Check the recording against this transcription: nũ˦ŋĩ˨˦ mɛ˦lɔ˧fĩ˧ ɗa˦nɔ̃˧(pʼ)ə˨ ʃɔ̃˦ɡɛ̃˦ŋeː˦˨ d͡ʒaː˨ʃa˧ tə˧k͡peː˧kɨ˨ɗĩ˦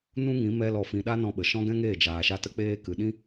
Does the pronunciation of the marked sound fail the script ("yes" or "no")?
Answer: yes